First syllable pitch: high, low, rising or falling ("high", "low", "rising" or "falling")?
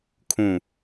low